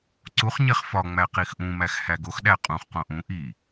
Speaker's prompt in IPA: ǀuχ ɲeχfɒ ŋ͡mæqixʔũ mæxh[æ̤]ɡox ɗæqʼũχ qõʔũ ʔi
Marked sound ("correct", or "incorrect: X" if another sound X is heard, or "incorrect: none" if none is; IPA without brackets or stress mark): incorrect: æ